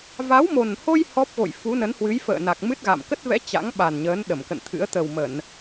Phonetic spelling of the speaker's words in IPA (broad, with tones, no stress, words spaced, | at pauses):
va˨˦wmo˨˩nho˧j hɔ˦˥p̚ɣo̰˧˨j fu˨˦nə˨˦nhwɨ˨˦j fə̰ː˧˨ na˨˩k̚mɨ˦˥t̚ɣa̰˧˨m kə˦˥t̚vɛ̰˧˥ t͡ɕa̰˧˥ŋɓa˨˩nɲəː˨˦n ɗə˧˩mkə̰˧˨nt̪ʰɨ̰˧˥ə̯ t̪ə˨˩wmə˧˩˨n